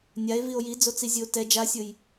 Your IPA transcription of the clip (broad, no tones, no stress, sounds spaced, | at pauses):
nʲ a e̯ v i o̯ j i d͡z o t͡s i zʲ ɯ o̯ t ɛ d͡ʒ a sʲ ɯ j